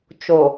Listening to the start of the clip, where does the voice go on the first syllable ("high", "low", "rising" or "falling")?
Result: low